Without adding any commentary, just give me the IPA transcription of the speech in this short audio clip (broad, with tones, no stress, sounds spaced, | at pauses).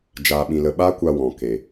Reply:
d͡ʒ aː˧ ɓ ĩ˧ l ə˧ ɓ a˦ kʷ a˧ w ɔ̃˨ k e˨